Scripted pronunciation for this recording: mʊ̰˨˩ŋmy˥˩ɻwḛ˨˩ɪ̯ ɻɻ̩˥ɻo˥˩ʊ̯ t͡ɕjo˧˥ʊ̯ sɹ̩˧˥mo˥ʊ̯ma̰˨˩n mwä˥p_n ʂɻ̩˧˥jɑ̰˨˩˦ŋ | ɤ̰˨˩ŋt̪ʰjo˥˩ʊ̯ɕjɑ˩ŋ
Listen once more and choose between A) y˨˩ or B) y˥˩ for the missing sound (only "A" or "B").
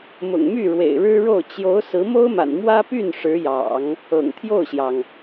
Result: B